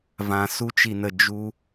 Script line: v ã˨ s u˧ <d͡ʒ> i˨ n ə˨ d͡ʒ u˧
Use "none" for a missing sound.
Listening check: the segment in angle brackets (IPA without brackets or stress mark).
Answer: t͡ʃ